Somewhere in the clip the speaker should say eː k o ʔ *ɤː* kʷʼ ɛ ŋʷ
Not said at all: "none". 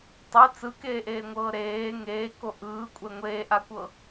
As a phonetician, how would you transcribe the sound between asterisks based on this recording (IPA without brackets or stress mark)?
ɯː